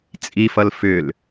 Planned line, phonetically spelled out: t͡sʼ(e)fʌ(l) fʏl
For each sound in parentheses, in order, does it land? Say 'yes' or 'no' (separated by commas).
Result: no, yes